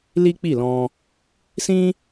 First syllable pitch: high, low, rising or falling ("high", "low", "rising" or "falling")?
high